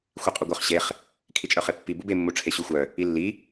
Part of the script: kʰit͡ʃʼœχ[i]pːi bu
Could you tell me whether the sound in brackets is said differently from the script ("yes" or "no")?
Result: yes